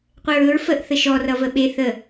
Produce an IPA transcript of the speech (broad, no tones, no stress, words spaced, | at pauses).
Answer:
qʷeɹɵɹ fəʔ θəʃɔ rʌvəɓe θə